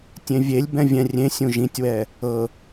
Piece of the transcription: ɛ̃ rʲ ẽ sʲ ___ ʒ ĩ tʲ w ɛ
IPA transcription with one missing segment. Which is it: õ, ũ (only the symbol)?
ũ